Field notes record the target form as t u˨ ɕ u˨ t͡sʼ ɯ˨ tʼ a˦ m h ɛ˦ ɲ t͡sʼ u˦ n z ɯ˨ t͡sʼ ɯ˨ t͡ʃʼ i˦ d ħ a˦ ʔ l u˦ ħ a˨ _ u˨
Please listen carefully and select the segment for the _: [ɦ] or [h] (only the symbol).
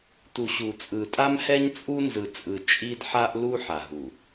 ɦ